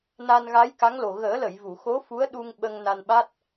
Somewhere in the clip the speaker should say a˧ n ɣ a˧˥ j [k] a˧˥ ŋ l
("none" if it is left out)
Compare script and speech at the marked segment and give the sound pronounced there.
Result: k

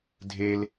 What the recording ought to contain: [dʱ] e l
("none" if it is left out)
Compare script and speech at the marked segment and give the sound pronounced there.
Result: dʱ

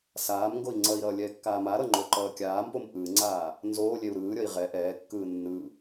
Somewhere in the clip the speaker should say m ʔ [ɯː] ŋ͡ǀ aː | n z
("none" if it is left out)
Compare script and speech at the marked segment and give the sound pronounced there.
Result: ɯː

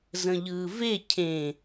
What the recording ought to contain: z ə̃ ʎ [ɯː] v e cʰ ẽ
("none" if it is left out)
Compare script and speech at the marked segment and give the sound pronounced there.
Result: ɯː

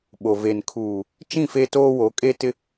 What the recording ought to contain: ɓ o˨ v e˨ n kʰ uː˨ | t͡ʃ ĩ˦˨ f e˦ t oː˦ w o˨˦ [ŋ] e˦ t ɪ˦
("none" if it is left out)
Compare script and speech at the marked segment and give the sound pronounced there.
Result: kʼ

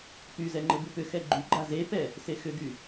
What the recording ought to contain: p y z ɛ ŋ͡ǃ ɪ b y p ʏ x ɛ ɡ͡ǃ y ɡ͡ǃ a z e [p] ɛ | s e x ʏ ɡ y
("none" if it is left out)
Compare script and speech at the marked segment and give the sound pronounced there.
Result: p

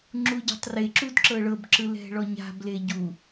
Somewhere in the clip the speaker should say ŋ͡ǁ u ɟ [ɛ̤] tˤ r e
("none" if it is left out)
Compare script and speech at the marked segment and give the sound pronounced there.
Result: ɛ̤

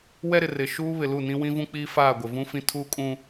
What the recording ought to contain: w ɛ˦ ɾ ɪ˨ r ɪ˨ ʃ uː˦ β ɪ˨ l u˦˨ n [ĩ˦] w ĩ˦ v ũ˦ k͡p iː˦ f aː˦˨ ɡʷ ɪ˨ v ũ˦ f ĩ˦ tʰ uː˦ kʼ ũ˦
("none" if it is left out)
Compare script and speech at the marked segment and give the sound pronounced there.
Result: ĩ˦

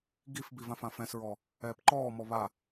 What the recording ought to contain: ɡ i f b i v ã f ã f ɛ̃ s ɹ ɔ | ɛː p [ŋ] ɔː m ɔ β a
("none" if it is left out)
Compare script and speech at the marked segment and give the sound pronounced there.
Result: ǃ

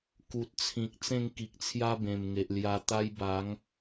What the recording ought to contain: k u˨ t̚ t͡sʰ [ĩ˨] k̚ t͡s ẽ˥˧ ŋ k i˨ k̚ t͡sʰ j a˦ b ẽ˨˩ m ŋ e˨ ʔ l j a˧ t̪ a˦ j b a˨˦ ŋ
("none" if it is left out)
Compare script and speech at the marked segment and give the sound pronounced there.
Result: ĩ˨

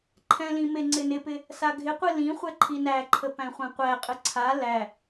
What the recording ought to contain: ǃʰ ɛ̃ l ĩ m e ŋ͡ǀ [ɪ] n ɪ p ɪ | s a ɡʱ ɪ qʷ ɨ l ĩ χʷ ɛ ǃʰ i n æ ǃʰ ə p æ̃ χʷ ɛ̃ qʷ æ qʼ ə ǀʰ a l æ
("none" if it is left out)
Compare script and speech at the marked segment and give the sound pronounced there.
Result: ɪ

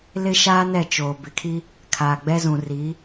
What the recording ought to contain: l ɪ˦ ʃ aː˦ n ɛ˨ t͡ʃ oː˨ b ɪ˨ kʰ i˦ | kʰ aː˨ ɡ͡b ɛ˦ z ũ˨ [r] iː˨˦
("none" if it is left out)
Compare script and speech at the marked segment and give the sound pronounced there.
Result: r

